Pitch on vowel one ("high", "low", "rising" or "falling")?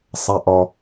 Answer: low